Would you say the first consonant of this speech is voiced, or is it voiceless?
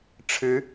voiceless